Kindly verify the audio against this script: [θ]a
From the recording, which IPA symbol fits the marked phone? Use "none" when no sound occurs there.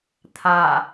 t̪ʰ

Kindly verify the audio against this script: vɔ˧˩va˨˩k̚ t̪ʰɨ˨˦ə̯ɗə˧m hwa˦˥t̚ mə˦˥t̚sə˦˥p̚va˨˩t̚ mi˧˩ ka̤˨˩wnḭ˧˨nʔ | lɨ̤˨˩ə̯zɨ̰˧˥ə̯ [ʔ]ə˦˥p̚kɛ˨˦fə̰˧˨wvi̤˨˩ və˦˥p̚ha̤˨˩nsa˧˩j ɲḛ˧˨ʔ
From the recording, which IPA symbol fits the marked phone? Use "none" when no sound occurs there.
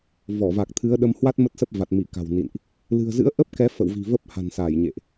ʔ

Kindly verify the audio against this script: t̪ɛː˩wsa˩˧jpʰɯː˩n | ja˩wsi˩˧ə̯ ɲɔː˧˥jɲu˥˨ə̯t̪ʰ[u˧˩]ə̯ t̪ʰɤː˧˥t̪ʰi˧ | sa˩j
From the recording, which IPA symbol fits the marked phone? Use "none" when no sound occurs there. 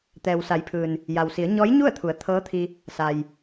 u˩˧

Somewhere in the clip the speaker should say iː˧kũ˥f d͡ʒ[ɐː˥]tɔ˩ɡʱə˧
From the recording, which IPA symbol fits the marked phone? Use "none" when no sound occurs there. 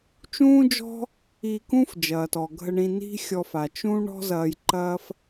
ɐː˩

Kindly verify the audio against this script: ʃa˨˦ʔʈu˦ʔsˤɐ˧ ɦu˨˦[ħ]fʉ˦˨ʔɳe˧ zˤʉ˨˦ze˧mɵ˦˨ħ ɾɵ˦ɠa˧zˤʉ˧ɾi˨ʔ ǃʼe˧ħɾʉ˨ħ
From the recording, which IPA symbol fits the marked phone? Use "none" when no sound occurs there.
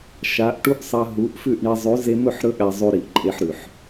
ʔ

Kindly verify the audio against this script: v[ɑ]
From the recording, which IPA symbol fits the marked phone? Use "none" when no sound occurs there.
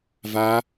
a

